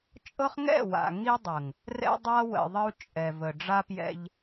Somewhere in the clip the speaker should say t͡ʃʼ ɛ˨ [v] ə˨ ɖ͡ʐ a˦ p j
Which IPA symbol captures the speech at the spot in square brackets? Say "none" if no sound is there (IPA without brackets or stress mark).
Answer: v